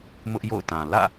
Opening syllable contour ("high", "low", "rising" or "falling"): high